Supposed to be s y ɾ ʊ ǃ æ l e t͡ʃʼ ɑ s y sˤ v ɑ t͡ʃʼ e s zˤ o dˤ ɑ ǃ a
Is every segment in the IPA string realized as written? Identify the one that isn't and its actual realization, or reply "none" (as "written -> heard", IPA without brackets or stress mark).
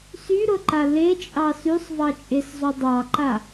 æ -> a